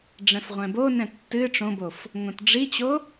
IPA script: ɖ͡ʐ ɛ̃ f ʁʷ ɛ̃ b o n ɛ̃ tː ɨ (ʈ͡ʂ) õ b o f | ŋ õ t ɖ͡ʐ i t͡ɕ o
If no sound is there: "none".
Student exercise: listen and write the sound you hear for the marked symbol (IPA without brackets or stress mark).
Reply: ʈ͡ʂ